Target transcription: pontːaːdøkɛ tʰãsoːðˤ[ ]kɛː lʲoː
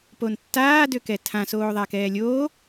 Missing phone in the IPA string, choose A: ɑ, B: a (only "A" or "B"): B